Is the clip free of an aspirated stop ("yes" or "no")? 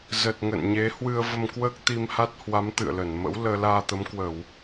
yes